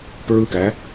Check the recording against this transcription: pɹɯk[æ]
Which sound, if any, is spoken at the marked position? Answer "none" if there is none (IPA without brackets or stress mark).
æ